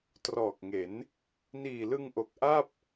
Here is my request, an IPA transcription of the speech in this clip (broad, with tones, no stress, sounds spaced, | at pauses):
t r ɔː˨˩ k̚ ŋ e˩˦ n | n iː˨˩ l ɯ˧ ŋ ʔ o˨˩ k̚ ʔ a˥˩ p̚